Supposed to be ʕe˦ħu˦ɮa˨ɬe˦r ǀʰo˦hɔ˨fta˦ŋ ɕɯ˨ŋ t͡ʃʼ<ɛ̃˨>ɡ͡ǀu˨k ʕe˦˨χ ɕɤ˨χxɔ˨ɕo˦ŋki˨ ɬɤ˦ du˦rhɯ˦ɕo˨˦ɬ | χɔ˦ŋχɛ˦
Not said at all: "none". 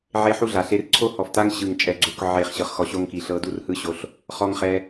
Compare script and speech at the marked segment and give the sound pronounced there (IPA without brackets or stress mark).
ɛ˨